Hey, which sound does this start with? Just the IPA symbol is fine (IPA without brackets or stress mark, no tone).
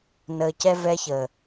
n